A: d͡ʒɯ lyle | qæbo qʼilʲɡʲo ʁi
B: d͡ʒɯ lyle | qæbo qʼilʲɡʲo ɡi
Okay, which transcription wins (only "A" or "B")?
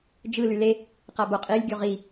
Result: A